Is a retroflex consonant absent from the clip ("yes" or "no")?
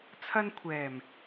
yes